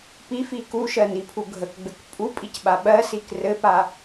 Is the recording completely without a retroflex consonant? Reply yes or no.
yes